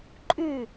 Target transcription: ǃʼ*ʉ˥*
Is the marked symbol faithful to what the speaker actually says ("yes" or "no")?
no